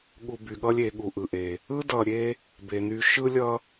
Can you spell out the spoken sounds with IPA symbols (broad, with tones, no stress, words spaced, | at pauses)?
ɠu˨by˩ɠʌ˦lʲe˨ ɠu˩ʔɯ˩ʔe˩ | ɯ˥dʌ˨ɾʲe˦ | be˩ny˨ʃɯ˦ lʲʌ˦